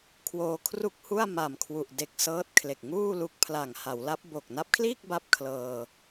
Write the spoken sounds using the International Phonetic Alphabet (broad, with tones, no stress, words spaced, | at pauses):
kʰwoː˧kʰru˥˩k̚hu˥˩a̯ ma˨˩mkʰwu˨˩ʔ de˨˩k̚ sɤː˦˥t̚kʰle˨˩k̚ŋuː˥˩lu˦˥k̚ pʰla˨˩ŋ ha˩˦wla˦˥p̚bo˨˩k̚ na˦˥p̚kʰliː˥˩k̚ ba˥˩p̚kʰlɤː˧